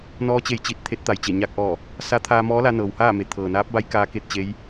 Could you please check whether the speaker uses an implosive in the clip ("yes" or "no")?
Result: no